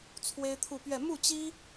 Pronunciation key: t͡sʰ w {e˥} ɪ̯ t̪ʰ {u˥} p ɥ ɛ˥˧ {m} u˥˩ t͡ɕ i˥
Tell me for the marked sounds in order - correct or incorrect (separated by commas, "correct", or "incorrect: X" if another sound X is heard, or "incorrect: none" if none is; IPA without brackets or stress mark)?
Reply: correct, incorrect: u˥˧, correct